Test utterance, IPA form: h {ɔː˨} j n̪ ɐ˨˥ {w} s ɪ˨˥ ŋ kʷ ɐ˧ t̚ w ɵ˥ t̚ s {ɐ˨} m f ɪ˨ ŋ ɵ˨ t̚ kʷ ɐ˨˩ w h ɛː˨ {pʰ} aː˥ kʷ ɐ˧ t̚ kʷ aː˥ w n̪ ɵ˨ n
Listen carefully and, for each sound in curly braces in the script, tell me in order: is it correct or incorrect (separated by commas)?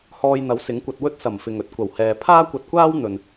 incorrect, correct, incorrect, correct